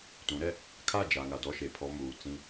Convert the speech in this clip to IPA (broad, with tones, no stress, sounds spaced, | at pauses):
t ũ˨˦ ɾ ɛ˦ | kʰ a˦˨ d͡ʒ a˨ ŋ a˨ d ɔ˦ ʃ e˨ pʰ ɔ˦ m uː˨ t͡s ĩ˦